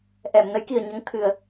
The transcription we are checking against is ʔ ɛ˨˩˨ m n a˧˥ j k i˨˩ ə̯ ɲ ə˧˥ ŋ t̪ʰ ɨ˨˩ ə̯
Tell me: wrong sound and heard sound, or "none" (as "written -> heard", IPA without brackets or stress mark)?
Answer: a˧˥ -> ə˧˥